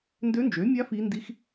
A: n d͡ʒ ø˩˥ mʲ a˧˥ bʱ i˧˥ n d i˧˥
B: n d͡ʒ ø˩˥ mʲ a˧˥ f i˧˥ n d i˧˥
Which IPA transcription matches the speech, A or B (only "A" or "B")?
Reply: B